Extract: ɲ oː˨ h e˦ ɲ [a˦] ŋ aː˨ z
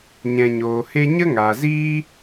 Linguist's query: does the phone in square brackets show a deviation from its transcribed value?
yes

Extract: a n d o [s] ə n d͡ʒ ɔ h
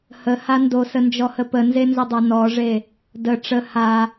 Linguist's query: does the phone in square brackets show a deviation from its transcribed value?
no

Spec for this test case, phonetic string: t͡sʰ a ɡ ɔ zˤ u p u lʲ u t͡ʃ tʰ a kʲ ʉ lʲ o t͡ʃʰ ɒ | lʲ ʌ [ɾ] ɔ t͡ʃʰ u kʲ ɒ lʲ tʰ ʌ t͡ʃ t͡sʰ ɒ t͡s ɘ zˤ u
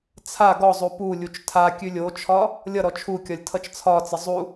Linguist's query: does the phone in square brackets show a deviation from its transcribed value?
no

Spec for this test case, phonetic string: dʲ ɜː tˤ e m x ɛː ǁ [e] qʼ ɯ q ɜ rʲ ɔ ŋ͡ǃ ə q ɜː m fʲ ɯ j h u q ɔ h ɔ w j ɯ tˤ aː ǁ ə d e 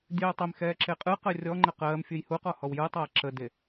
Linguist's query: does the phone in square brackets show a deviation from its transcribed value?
no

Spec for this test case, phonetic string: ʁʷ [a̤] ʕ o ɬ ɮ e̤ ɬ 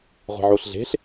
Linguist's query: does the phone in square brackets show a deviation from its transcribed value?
yes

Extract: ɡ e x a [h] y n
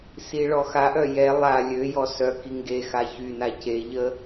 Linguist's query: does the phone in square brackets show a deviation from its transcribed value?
yes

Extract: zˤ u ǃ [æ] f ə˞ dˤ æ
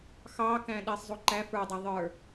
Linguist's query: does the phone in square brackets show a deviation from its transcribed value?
no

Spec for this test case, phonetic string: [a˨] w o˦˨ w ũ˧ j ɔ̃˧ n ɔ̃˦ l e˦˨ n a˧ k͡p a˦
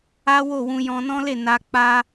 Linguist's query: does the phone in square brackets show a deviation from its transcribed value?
yes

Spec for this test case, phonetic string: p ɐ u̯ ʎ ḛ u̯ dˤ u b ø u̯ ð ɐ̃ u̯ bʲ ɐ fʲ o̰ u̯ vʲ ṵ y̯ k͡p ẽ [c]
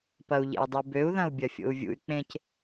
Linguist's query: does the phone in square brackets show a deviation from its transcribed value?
no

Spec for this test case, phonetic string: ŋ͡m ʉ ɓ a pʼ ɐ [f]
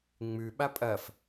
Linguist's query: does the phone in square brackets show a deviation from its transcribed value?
no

